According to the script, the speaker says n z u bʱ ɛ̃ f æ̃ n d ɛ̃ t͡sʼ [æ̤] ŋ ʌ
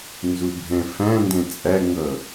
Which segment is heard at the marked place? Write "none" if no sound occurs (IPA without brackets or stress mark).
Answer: æ